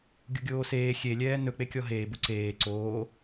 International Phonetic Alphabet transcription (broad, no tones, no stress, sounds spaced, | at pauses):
ɡʲ u ɡʲ oː s eː xʲ e lʲ ɛː n ɵ k͡p e kʲ ɔ ɦ eː b u ǀ eː ǀ oː